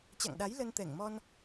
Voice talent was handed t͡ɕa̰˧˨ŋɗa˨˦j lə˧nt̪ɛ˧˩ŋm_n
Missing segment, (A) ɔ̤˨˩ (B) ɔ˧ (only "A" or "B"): B